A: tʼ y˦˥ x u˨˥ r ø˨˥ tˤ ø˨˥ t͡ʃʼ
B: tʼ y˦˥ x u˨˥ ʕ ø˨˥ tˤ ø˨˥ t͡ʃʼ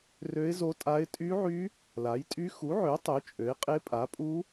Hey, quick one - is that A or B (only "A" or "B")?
B